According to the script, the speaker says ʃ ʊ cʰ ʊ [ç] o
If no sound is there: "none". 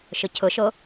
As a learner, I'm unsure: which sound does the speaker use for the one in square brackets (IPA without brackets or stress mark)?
ʃ